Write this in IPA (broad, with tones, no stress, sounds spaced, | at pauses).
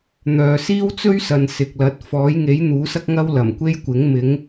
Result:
n̪ œː˨ s iː˥ w t͡s ɵ˥ ɥ s ɐ˨ n s ɪ˨ k̚ l ɐ˨˥ t̚ f ɔː˨˥ j ŋ e˨˥ j n̪ uː˨˥ s ɐ˥ k̚ ŋ ɐ˥ w l ɐ˨˩ m kʷ e˥ j kʷ ɪ˨˥ ŋ m ɪ˨˥ ŋ